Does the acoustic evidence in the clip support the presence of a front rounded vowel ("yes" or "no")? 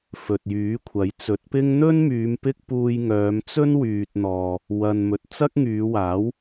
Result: yes